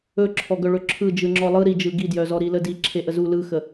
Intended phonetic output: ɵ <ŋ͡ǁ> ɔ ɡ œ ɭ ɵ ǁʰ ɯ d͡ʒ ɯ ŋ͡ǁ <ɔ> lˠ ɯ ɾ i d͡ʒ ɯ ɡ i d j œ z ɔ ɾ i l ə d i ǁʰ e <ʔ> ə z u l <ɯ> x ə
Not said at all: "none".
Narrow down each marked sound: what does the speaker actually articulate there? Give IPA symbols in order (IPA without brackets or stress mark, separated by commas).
ǁʰ, ɔ, ʔ, ɯ